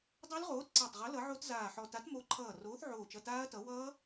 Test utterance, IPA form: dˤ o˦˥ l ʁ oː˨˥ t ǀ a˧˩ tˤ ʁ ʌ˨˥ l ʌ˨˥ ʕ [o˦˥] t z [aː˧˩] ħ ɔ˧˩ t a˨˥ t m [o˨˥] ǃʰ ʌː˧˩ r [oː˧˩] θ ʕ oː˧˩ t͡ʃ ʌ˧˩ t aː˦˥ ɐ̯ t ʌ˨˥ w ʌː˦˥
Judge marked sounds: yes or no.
yes, yes, yes, no

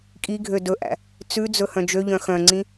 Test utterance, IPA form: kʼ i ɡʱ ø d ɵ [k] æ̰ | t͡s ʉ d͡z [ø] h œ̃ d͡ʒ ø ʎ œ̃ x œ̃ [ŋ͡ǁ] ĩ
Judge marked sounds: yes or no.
no, no, no

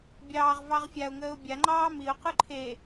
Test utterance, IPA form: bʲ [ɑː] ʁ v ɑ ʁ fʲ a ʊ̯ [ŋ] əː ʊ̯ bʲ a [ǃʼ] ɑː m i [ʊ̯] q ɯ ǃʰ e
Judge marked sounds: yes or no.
yes, yes, no, yes

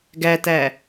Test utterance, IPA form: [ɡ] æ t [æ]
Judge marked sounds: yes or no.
yes, yes

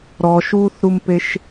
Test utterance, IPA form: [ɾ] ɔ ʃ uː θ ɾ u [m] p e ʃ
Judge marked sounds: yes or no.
yes, yes

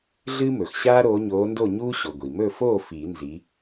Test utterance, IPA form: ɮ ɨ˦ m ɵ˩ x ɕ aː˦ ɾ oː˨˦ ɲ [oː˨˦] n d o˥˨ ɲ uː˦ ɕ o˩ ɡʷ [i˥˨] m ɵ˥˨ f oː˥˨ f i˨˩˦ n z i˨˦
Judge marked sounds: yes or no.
yes, no

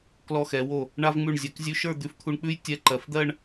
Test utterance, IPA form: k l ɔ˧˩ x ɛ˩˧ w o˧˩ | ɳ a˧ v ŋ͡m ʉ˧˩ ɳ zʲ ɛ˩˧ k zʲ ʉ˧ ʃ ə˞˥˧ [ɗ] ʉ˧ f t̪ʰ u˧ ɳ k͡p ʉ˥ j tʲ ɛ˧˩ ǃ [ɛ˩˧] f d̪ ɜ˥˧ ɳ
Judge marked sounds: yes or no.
no, no

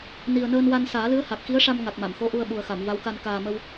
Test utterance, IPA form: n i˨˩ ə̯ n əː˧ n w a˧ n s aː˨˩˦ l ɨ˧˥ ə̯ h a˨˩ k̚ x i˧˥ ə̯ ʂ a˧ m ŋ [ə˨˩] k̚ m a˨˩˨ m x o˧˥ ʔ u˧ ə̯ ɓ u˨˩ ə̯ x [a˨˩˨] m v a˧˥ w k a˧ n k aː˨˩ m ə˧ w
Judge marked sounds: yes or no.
no, yes

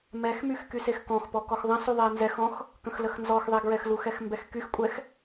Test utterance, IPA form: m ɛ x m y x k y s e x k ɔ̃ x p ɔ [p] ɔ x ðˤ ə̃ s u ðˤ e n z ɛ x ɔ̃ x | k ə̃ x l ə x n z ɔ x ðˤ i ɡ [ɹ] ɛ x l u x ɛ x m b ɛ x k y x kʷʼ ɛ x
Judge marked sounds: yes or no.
no, yes

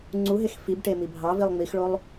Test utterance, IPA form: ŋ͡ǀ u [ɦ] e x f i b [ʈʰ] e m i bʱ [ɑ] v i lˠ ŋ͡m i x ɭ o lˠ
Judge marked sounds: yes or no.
yes, no, yes

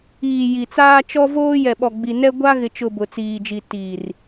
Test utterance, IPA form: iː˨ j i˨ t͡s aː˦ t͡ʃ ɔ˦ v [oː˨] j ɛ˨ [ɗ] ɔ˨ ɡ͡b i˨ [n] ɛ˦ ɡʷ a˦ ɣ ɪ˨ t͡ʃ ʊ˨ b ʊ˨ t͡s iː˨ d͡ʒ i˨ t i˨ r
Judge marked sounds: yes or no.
no, no, yes

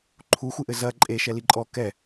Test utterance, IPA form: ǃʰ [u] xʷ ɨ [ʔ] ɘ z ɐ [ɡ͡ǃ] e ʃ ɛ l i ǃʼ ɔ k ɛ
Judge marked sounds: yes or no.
yes, yes, no

